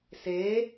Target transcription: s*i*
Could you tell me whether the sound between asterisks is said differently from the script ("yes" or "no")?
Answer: yes